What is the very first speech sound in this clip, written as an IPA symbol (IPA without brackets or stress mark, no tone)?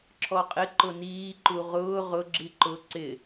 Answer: ǁʰ